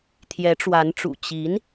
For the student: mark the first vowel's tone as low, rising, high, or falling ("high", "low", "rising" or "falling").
rising